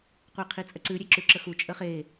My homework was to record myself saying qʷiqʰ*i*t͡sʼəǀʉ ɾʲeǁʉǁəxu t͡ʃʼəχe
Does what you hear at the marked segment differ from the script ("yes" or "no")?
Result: no